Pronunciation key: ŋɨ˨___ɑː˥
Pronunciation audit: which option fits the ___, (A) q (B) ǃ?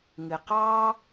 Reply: A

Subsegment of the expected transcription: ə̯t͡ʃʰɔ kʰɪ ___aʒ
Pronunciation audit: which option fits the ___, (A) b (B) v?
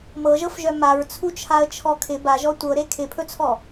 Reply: A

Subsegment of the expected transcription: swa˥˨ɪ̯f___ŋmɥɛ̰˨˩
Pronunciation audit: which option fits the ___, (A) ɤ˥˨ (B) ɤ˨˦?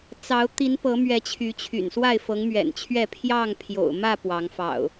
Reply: B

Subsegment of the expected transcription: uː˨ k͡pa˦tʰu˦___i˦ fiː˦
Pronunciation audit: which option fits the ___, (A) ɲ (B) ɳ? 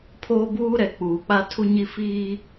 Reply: A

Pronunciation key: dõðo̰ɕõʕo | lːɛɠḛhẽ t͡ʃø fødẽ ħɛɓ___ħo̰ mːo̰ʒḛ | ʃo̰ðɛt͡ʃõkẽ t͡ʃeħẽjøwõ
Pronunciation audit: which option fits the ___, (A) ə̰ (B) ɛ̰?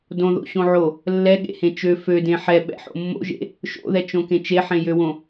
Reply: B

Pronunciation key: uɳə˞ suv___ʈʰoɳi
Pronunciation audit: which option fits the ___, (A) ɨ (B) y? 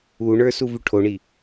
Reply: B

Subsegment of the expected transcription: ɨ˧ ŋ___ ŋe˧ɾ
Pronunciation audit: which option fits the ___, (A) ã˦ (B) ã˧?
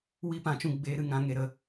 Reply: B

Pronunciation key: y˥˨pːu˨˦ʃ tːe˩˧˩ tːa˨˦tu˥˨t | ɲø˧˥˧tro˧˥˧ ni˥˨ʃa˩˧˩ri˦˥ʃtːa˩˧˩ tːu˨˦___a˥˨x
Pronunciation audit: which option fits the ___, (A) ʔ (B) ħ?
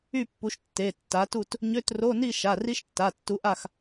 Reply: A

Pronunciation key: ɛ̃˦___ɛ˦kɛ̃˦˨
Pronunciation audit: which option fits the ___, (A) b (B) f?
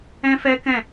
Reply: B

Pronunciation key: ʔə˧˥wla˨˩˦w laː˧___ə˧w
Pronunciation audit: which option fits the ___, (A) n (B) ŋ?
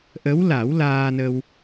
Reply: A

